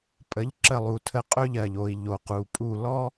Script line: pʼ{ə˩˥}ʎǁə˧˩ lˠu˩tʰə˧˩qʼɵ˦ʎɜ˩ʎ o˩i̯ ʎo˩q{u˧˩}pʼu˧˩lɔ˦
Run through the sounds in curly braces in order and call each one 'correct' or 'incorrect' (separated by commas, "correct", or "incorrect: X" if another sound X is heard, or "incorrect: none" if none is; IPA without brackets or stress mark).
correct, incorrect: u˩